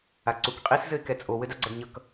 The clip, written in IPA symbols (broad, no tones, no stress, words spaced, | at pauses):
aǀukqʼis zɘɪ̯kɛt͡sʼo wɘdaɡ͡ǀʌdɲʌk